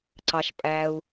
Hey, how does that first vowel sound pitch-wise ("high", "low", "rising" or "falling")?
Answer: low